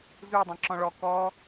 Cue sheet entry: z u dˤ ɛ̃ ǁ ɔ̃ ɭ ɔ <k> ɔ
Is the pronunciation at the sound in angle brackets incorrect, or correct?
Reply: correct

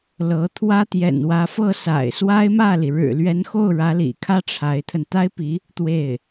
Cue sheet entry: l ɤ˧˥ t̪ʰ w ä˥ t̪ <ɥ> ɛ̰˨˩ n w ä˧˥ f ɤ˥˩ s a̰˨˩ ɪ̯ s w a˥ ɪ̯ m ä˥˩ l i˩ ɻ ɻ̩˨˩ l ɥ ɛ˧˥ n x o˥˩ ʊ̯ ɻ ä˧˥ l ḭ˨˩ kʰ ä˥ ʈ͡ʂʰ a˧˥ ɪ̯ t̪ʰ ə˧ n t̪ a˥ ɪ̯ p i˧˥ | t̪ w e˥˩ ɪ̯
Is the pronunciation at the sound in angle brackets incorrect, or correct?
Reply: incorrect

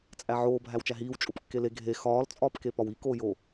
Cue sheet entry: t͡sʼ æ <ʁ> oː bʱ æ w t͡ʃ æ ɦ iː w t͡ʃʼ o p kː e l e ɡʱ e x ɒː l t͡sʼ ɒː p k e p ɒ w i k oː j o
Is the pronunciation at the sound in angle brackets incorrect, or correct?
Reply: incorrect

